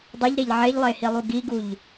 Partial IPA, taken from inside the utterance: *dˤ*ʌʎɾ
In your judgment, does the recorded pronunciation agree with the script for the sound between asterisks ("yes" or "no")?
yes